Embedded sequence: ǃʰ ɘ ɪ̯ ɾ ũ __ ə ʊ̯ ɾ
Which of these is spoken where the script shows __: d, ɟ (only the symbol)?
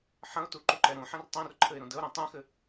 d